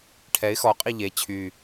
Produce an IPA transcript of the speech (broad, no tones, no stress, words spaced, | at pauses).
ʈʰɛɪ̯ xɔ qʼiʎe t͡ɕʰy